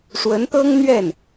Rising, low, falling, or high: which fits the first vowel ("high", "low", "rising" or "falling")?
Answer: rising